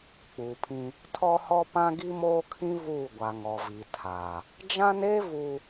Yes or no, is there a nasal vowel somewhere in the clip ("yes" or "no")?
yes